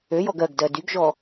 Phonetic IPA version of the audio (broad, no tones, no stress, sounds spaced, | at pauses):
ø j ɔ ɡ ɜ ɡ d ɜ d y ɡ ʒ ɔ